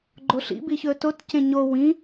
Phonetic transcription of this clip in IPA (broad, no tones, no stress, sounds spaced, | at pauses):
ɡ͡ǃ o ɬ ḭ b i ç ɵ t o t c ẽ ɲ o w ĩ